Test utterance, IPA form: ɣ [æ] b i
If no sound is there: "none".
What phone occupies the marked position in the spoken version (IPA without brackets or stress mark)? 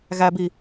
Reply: æ